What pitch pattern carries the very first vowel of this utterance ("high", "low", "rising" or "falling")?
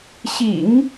low